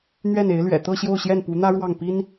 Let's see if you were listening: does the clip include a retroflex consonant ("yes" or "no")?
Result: yes